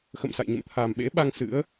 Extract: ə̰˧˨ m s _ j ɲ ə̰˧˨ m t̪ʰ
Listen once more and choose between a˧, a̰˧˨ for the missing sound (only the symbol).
a̰˧˨